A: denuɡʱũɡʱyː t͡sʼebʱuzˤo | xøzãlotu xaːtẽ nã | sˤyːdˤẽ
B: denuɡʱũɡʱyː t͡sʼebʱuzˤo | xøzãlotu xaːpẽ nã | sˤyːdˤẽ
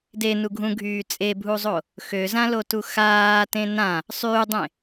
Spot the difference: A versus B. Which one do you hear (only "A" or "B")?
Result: A